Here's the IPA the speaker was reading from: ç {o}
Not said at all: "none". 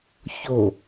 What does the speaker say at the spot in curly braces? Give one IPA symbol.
o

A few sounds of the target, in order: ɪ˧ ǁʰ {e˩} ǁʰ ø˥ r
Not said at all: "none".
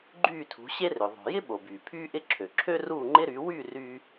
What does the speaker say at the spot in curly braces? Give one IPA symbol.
ø˩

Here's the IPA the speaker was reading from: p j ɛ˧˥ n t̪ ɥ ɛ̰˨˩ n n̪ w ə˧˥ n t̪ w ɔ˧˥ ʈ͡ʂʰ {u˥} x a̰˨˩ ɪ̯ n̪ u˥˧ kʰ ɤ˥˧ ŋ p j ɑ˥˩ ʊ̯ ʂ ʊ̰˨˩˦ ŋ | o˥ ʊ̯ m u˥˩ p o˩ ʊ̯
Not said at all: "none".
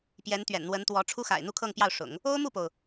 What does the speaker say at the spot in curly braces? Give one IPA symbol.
u˥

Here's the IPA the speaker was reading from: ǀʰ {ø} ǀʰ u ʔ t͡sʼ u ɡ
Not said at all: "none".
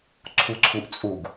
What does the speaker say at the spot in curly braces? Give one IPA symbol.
u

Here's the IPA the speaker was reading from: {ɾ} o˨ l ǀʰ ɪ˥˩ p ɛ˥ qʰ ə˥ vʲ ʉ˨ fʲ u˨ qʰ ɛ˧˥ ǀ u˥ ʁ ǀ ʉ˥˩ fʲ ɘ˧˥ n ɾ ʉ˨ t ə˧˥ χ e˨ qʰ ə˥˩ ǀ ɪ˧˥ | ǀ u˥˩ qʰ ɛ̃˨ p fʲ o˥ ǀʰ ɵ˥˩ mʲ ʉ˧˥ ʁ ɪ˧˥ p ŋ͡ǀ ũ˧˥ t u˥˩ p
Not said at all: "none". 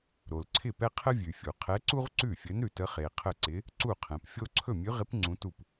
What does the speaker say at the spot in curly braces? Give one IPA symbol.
ɾ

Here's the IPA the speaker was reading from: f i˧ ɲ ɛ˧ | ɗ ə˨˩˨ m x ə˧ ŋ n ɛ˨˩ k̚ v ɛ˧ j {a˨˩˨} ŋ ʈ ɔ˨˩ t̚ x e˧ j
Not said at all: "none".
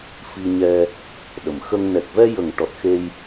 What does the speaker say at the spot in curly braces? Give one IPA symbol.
ə˨˩˨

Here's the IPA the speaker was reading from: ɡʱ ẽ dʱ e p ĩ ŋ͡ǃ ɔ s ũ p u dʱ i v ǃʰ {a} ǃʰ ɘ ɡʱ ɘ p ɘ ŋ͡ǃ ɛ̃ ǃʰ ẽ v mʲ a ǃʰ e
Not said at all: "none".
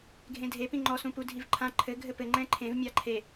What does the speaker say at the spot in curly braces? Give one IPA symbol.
ã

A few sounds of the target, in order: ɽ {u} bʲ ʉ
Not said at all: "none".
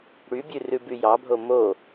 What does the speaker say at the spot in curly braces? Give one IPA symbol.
y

